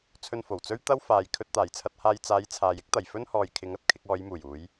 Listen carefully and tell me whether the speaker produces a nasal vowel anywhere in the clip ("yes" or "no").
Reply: no